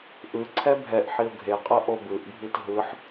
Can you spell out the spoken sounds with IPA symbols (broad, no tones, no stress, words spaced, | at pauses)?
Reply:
ʔɯ ǀʰɛbʱɛʔħiʊ̯ ɡʱeqʼɤ ʔobɯʔbʱit ɦɯħ